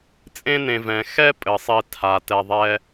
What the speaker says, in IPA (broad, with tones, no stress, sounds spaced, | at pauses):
t͡sʼ ẽ˦ n ẽ˨ v ɛ̃˩ x ɛ˦ pʼ ɘ˩ sˤ i˨ tʰ a˩ t ɛ˨ ðˤ ɛ˦